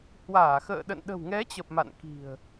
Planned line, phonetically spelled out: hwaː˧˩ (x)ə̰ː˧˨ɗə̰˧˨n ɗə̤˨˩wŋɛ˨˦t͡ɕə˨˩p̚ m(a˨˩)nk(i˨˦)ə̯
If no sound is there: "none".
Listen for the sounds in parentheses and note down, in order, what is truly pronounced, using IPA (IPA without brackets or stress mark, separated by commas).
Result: x, a̰˧˨, i̤˨˩